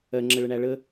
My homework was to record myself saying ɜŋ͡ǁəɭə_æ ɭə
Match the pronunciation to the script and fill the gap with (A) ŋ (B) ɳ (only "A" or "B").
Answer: B